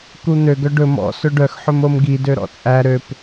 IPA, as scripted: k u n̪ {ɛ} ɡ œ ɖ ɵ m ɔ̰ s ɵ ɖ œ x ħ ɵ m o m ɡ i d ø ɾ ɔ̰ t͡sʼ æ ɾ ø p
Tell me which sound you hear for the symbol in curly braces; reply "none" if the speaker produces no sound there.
ø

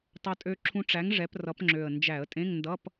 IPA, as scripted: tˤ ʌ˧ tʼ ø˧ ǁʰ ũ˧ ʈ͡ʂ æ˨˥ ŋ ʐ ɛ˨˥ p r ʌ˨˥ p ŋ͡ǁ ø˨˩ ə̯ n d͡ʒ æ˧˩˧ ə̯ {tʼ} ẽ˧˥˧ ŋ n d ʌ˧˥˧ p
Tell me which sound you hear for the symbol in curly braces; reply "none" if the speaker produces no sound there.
tʼ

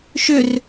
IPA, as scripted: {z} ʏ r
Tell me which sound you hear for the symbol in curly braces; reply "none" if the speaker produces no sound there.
ʃ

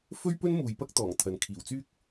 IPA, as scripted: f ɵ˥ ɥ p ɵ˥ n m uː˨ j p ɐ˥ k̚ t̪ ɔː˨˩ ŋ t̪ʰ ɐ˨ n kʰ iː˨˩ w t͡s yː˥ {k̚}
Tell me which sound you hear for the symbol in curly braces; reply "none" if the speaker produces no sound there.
k̚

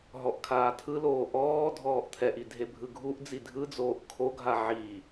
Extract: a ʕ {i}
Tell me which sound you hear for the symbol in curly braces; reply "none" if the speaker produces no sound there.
i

